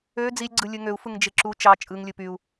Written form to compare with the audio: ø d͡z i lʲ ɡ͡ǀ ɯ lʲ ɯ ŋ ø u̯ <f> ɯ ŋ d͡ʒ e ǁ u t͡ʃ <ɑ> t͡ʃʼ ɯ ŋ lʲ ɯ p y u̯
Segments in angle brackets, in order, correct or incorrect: correct, correct

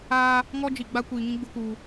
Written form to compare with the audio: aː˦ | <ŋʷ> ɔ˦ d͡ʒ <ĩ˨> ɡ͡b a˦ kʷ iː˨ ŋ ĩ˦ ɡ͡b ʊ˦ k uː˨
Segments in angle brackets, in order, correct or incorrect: incorrect: ŋ, incorrect: i˨

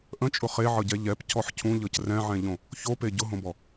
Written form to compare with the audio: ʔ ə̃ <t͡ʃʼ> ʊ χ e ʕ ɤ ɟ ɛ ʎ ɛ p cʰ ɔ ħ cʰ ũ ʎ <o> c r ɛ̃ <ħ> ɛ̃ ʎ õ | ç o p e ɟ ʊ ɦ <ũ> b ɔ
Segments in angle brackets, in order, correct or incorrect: correct, incorrect: ɤ, incorrect: ʕ, incorrect: õ

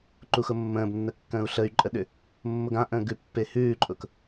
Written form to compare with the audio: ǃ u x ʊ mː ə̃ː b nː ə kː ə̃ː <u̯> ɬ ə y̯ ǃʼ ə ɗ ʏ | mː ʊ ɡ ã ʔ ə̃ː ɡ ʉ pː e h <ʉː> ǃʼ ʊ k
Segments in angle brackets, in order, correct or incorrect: correct, correct

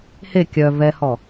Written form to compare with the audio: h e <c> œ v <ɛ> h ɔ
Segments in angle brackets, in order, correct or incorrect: incorrect: kʲ, correct

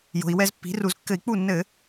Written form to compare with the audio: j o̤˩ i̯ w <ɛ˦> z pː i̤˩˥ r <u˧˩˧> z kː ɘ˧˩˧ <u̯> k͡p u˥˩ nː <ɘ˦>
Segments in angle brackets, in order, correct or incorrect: correct, correct, incorrect: i̯, incorrect: ɘ˧˩˧

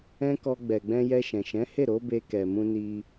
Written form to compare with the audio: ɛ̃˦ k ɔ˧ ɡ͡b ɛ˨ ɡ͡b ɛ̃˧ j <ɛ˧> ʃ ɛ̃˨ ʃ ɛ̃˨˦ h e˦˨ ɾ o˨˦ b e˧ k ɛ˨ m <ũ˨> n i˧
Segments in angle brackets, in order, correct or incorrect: correct, incorrect: ũ˧

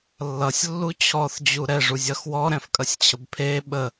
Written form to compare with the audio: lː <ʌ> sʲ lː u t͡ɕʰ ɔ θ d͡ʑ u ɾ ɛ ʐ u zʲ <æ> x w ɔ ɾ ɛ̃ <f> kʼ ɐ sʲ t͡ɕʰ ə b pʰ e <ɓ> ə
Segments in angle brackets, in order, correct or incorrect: correct, incorrect: ɐ, correct, correct

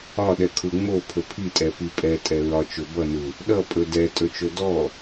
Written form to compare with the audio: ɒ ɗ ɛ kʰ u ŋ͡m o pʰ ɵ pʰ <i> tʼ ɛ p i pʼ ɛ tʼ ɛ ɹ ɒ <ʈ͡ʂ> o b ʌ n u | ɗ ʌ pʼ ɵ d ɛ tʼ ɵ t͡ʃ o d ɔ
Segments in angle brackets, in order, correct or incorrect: correct, incorrect: t͡ʃ

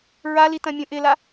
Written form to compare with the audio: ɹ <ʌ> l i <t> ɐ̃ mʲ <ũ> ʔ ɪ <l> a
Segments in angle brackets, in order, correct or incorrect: incorrect: a, correct, correct, correct

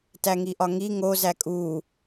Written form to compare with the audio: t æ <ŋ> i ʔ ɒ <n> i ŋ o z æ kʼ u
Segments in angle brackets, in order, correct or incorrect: correct, incorrect: ŋ

